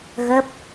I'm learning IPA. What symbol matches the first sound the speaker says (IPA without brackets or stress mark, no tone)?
ɣ